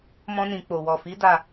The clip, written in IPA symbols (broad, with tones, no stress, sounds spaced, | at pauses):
m ɔ̃˧ n ĩ˨ k͡p o˨ w ɔ˨ f i˨˦ d a˦˨